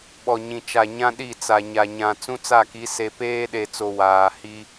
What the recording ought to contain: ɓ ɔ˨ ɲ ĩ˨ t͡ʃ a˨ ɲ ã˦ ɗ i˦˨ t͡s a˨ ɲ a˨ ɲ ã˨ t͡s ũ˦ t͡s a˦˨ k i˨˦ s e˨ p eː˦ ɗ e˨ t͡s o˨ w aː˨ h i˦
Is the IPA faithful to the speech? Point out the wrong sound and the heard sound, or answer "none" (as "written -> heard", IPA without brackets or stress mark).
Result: none